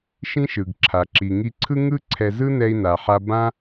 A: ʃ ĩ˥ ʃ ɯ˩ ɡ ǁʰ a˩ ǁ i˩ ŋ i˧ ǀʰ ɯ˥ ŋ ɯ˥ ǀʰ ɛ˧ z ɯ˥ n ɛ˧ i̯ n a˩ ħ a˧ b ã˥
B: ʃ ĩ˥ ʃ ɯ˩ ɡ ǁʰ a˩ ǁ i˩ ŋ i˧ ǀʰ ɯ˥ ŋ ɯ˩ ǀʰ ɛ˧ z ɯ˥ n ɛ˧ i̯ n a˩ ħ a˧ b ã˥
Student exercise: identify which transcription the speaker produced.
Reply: A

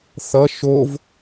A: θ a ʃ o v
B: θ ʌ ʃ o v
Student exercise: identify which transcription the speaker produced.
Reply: B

